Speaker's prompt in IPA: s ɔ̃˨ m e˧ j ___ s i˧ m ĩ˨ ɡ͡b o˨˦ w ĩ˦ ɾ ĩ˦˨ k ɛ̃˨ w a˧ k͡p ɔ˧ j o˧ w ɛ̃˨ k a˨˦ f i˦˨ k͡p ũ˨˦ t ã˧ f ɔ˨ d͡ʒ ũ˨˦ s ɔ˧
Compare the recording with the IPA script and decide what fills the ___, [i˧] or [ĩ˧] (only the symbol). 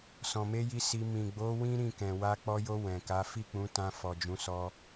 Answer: i˧